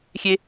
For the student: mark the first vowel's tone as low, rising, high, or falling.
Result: high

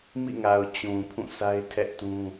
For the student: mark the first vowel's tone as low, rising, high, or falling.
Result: falling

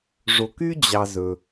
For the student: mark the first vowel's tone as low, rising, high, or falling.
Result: low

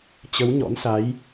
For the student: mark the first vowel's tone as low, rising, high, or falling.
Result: rising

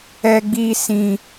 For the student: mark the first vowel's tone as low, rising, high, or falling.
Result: high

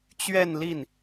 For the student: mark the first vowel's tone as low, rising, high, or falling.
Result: falling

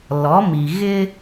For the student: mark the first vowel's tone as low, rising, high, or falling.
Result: rising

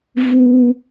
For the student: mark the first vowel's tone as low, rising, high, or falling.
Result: low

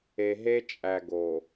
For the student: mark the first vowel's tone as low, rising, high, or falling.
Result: low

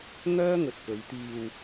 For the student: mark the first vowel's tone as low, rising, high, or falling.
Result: high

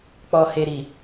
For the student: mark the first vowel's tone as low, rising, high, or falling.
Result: low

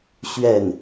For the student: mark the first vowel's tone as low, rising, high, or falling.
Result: falling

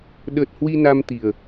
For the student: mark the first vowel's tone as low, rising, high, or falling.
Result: low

